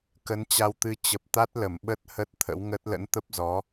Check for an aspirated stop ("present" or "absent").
present